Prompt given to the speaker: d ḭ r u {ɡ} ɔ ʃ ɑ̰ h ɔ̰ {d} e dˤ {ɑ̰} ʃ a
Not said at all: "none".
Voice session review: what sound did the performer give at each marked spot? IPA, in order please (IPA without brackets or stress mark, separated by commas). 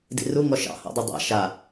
ŋ, dˤ, a̰